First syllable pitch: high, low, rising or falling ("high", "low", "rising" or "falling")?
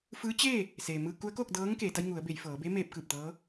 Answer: rising